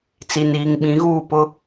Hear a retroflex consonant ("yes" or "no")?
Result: no